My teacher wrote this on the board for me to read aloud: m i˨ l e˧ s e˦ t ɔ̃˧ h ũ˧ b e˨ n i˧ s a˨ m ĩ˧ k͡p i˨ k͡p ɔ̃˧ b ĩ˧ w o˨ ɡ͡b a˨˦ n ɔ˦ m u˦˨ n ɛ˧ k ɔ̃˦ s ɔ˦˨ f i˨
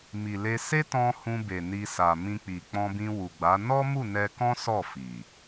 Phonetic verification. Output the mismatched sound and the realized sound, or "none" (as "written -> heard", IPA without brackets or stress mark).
o˨ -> u˨